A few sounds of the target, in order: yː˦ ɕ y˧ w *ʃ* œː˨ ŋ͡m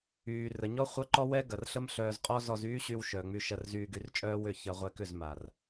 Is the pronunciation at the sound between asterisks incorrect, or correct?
correct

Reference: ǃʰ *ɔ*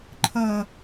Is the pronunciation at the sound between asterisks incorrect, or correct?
incorrect: ʌ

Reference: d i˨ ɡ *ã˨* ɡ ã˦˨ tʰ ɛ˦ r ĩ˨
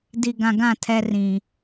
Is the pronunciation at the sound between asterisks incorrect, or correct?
correct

